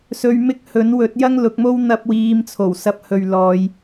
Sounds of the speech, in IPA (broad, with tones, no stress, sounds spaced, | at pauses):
s ɵ˧ ɥ m ɪ˥ k̚ h ɵ˨˥ n w ɵ˨˥ t̚ j ɐ˥ ŋ l ʊ˨˥ k̚ m o˥ w n̪ ɐ˧ p̚ w iː˨˧ m t͡sʰ o˨˩ w s ɐ˧ p̚ h ɵ˨ ɥ l ɔː˧ j